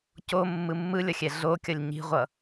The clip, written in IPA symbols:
comːɯ mːɯlʲʌxʲɛ ɮokʲʌlʲ ɲi̤ʁʷʌ

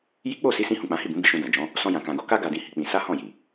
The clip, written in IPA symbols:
ji˦ k͡po˦˨si˨˦sĩ˧ hũ˨k͡pã˨˦hi˦˨bũ˨˦ bi˧ʃũ˧dã˨ d͡ʒɔ̃˨˦ | sɔ̃˧jã˨kã˨ɡo˧ ka˧ɡa˨dĩ˨ hi˨˦k͡pĩ˧ sa˦hɔ̃˦˨ji˨

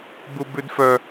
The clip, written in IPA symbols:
bubʉdfœ

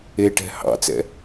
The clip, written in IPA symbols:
eʈɛ̤ hɑ̰t͡sɛ̰

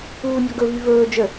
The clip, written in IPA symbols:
uːnʲɔɡɵvy vɵː d͡ʒə

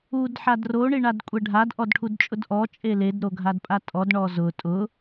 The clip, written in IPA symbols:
ud ħadro ɳiɳadkʷʼɛɖʱad ʔɔdʈʰudt͡ʃʼʊdʔɔ t͡ʃʼeled ɾoɡʱadpʼatʼɔd ɳɔzʊ tʼʊ

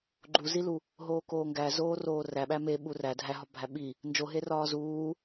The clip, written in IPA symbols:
ɡ͡ǃuzilu | ɦoːkoːŋɡæ zoːroːræɓæ meɓu ræ dʱæɦɒ bʱæɓi | nd͡ʒoɦe rɒːzuː

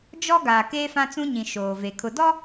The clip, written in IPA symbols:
d͡ʒɔ˦ɡaː˨ keː˦fã˦t͡sũ˦ɲĩ˨ ʃoː˨ve˨ kʰʊ˨dɔ˦

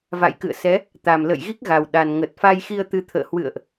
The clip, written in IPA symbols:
va̰˧˨jkɨ̰˧˨ə̯sɛ˨˦ | t̪a˨˩mlə̰˧˨jɣi˦˥k̚ɣa˨˩w ɗa˨˩n ŋə˨˩t̚fa˧jxi˧ə̯t̪ɨ˨˦ t̪ʰə̰ː˧˨hwɨ̰˧˨ə̯ʔ

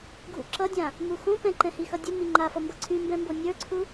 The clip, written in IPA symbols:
ɡʱṵǁʌdʲã | muxõpɛ̃ǃɛ̃ hixʌdʲə miŋ͡ǃafʌmbʌ ǀʰymbɛ̃mbo nʲə˞ǀʰu

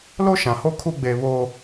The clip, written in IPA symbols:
lo˦ʃã˨ ho˦kʰu˦ ɡ͡be˦ βoː˦

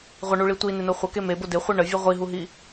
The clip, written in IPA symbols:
ʁʷəɳuɭi tʷinɪno χʷəke mebo dɪχʷi ɳəvʲu ʁʷiɦuɦi

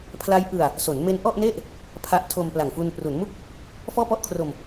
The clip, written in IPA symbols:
pʰla˦˥j ʔɯ˧a̯ | so˩˦nme˦˥n ʔɔ˥˩ʔne˥˩ʔ | pʰa˦˥ʔtʰo˧m pla˨˩ŋfu˧n pru˩˦nmu˥˩k̚ | fɔː˥˩pɔ˥˩ʔkʰro˧m

